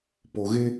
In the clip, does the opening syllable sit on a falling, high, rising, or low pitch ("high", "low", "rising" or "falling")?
low